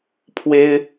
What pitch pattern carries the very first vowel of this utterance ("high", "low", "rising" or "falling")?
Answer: high